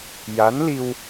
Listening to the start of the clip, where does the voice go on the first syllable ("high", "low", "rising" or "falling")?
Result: rising